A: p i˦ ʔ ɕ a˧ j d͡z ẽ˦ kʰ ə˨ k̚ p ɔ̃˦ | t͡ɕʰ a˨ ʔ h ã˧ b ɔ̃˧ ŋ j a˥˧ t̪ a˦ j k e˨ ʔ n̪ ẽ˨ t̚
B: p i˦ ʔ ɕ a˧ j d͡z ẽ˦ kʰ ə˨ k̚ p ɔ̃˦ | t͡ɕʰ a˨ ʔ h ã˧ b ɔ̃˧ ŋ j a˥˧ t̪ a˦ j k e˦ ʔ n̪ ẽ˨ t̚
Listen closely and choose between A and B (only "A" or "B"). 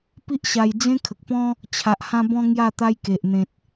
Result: A